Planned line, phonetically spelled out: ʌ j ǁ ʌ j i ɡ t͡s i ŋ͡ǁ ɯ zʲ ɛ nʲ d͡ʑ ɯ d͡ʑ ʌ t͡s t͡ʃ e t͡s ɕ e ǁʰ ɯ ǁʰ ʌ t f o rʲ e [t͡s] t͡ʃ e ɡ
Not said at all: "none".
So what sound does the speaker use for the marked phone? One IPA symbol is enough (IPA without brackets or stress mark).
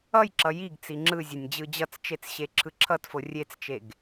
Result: t͡s